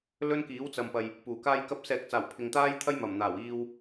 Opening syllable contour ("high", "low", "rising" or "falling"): high